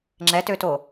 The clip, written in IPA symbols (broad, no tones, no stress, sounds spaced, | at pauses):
ŋ͡ǁ ɛ t ø t o